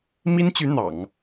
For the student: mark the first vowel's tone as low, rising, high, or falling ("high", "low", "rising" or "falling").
high